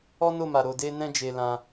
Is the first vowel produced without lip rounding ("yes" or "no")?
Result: no